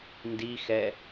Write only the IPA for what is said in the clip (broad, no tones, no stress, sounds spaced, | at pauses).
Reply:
n d i x ɛ